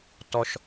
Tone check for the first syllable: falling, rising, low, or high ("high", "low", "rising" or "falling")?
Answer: low